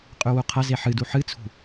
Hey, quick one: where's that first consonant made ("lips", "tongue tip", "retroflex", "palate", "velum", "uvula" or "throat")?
uvula